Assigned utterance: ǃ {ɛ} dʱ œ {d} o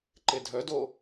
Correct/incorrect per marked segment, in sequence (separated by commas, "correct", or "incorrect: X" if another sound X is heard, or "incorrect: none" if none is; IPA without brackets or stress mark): incorrect: e, correct